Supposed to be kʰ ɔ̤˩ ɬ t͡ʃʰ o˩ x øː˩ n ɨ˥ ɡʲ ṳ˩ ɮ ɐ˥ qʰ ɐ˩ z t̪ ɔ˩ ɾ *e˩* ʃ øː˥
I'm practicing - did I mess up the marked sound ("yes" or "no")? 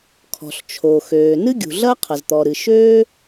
yes